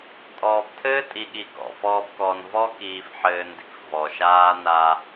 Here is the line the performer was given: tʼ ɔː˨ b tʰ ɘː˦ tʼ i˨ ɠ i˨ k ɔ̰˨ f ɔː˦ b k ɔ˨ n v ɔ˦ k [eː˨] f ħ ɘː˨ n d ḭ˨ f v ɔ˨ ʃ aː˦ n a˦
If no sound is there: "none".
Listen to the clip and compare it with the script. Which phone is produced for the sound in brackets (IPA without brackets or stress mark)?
iː˨